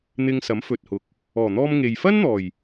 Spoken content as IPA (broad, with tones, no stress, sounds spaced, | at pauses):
n̪ ɪ˧ ŋ s ɐ˨˥ m f ɵ˨ t̚ h ʊ˨ k̚ | ɔː˨˩ n̪ ɔː˧ m ŋ e˨ j f ɐ˥ n n̪ ɔː˨˩ j